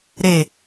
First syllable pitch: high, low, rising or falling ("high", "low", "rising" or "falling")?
low